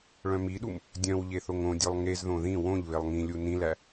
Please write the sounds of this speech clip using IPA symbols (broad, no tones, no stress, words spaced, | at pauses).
ɭœ̃miɗum | dʲœ̃wʎe θoŋõdʲœlˠ ŋezðõ ðĩ wõʎ βelˠŋĩlʲu nĩlæ